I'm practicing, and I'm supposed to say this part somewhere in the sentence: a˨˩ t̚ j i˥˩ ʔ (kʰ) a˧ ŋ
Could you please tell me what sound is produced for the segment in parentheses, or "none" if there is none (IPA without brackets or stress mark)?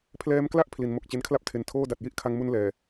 kʰ